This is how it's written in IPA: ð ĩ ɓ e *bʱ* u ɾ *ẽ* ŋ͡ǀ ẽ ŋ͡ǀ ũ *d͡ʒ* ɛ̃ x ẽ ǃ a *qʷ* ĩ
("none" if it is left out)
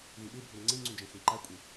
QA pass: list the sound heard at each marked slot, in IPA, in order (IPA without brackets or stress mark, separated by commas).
bʱ, ɛ̃, d͡ʒ, kʷʼ